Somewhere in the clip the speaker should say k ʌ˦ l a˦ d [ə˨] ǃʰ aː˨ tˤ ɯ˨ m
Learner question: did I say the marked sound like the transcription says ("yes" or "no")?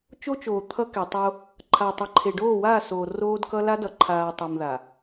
no